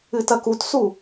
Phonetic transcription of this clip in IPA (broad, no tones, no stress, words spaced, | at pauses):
ɨtɐkutsu